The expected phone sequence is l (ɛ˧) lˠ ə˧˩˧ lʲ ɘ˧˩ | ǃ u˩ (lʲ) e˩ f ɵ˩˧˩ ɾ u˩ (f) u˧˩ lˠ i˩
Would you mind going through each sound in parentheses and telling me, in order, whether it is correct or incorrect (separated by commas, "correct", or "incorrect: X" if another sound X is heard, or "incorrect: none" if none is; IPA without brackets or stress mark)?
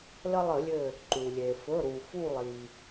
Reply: incorrect: ə˧, correct, correct